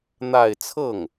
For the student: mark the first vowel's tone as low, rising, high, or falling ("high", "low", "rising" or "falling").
falling